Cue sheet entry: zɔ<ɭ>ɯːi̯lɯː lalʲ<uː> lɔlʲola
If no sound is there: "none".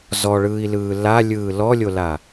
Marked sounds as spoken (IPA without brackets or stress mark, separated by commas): ɭ, ɯː